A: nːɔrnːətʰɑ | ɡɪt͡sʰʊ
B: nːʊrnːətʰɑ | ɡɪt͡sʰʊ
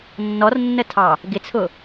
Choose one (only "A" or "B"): A